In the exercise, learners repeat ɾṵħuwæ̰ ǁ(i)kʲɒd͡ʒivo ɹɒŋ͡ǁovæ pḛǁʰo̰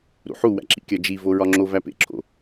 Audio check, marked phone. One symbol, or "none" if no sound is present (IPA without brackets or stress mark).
ḭ